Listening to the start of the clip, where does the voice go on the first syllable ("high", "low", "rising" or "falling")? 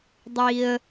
low